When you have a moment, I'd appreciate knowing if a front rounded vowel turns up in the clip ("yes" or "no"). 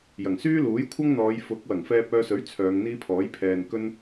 yes